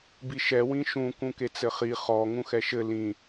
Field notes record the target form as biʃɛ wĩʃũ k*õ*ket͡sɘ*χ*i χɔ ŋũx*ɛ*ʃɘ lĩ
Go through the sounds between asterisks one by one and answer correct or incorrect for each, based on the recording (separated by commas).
incorrect, correct, correct